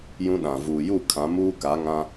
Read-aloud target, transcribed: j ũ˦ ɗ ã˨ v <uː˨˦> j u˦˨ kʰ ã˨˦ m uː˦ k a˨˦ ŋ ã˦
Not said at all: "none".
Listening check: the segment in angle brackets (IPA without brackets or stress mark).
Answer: uː˨